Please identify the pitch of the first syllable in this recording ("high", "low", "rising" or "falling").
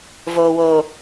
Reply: low